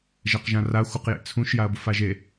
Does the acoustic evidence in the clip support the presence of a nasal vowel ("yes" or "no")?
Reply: yes